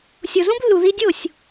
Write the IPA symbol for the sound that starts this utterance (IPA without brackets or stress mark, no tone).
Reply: sʲ